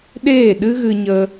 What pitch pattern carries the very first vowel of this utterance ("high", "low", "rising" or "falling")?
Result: falling